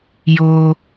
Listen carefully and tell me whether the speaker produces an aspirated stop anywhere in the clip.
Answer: no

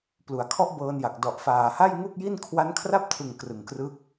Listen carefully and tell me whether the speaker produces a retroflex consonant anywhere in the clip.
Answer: no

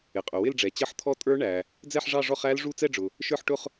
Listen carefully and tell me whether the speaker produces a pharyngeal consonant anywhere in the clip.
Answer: yes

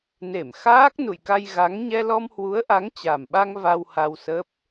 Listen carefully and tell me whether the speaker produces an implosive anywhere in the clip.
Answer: yes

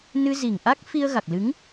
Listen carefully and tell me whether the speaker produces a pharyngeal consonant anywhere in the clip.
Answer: no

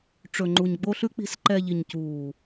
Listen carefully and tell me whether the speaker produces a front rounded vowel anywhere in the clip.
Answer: no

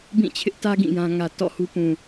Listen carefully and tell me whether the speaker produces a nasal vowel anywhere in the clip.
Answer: yes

